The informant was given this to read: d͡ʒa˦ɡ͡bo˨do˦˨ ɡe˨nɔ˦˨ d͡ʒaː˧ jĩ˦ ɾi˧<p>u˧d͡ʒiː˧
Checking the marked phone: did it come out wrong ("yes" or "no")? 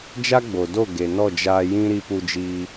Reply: no